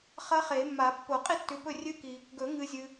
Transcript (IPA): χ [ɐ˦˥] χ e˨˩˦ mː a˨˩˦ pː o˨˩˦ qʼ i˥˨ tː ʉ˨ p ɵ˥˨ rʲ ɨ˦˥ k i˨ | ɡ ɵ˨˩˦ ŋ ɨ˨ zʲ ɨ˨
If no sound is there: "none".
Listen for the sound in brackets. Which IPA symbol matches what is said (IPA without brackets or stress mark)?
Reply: ɐ˦˥